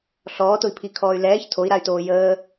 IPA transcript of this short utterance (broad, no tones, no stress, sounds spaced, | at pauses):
ɬ ɔː t ʊ i̯ pʰ i kʰ ɔː y̯ l ɛː ç tʰ o i̯ ɾ a y̯ t oː j əː